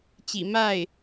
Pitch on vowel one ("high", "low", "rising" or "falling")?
low